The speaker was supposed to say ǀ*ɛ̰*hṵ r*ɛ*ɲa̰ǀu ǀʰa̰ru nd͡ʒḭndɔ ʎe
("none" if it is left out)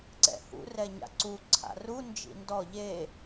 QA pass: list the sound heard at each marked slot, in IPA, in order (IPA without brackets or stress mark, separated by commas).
ɛ̰, ɛ